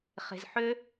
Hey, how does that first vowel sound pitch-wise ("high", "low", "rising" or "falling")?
low